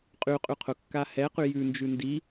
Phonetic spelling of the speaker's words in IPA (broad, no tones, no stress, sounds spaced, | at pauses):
qʼ y qʼ y qʰ ʊ kː a h ɛ q y j ʉ n d͡ʒ ʉ n d i